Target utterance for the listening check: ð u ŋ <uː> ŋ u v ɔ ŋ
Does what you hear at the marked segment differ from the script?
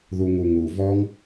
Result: yes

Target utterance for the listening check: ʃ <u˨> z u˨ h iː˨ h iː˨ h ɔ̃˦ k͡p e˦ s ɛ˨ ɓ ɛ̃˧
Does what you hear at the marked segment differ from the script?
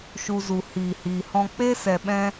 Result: no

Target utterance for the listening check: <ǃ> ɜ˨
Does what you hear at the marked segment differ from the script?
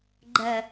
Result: yes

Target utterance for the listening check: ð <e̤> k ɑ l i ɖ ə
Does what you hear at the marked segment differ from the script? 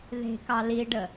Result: no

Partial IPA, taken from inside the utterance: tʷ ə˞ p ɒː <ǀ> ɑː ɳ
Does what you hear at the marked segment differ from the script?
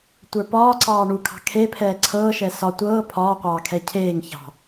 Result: no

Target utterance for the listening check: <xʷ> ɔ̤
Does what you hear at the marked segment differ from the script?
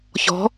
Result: yes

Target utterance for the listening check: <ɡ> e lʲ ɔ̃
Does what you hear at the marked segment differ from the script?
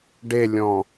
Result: yes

